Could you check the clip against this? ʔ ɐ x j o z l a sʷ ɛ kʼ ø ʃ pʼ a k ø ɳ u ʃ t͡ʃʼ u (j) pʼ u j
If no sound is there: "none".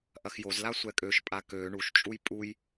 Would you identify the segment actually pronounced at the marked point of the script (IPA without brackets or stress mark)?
j